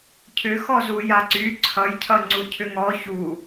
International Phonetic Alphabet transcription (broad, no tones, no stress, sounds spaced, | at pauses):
cʰ ʏ x ɔ z u j a ǀ y ǀʰ ʌ j cʰ ʌ ŋ͡ǀ u cʰ ʏ ŋ ɔ ç u